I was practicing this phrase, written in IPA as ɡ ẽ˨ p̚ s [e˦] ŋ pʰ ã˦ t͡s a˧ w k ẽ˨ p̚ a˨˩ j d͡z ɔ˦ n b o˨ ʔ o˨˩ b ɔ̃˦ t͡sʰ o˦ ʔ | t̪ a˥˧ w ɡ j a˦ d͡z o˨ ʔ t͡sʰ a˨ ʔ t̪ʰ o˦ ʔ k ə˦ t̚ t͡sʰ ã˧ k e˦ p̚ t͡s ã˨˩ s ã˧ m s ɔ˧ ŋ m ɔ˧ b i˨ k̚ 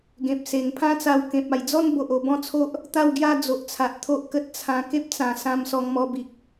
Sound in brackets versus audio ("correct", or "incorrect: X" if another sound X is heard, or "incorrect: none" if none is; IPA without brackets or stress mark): incorrect: e˨˩